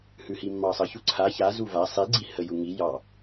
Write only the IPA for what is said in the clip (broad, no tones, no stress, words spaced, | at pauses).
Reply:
hʉhimːɑsˤə çuǀʰa ça zuva sˤi ɡ͡ǀihəjuŋi jɑ